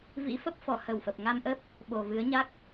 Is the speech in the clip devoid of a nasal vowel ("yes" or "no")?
yes